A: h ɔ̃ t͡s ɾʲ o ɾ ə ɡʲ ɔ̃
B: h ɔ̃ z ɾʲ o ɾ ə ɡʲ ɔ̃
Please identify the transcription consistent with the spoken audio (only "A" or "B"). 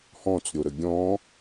A